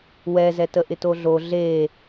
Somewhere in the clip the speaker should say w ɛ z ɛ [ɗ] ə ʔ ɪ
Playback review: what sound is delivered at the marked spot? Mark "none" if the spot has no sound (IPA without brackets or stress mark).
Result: t